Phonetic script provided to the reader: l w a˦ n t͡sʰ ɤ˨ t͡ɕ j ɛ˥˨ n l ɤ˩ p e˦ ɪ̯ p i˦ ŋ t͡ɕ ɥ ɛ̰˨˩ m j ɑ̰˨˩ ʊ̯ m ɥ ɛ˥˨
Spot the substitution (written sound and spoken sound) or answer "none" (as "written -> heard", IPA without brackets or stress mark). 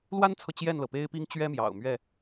ɛ̰˨˩ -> ɛ˦